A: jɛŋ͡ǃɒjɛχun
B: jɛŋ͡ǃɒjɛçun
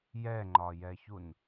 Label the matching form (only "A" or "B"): B